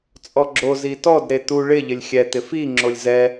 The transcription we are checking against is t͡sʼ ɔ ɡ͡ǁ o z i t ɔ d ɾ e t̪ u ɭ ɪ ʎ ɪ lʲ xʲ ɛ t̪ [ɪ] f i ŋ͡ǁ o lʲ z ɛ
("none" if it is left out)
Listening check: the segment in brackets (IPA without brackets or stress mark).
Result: ɪ